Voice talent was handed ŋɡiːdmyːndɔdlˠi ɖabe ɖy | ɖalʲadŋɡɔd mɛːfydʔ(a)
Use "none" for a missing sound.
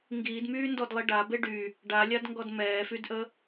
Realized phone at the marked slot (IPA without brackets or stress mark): ə